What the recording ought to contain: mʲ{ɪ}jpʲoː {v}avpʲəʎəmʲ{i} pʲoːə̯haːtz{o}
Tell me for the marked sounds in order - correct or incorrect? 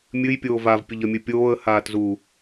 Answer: incorrect: ɨ, correct, incorrect: ɨ, incorrect: u

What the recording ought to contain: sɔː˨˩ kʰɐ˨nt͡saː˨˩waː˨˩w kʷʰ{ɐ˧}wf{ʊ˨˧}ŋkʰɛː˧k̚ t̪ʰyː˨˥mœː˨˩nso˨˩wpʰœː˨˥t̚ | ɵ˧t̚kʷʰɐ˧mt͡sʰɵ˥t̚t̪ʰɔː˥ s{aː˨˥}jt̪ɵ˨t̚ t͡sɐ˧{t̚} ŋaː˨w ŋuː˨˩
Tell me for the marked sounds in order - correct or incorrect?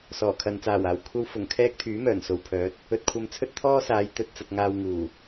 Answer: correct, incorrect: ʊ˨˩, incorrect: aː˨˧, correct

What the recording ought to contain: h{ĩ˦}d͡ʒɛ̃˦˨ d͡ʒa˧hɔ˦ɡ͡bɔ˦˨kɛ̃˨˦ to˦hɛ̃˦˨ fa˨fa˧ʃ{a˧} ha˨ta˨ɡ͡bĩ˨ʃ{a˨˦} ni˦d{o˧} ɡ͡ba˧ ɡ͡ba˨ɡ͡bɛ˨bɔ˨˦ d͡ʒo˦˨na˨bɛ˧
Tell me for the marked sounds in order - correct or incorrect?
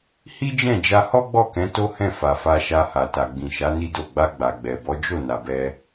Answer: incorrect: i˦, correct, correct, incorrect: o˦˨

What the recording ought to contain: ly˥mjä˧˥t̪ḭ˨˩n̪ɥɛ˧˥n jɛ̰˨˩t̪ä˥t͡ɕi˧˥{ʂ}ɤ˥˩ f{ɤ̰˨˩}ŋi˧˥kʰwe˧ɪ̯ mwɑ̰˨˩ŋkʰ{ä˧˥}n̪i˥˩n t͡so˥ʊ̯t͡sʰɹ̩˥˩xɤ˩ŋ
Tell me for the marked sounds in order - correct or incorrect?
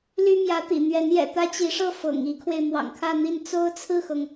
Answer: correct, correct, incorrect: ä˥˧

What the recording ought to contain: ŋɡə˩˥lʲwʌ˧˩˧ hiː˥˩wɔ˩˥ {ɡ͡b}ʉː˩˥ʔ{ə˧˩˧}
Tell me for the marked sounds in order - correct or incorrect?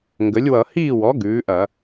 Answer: incorrect: ɡ, incorrect: ɐ˧˩˧

